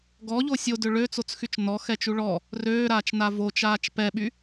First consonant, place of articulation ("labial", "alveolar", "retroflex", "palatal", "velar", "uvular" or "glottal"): velar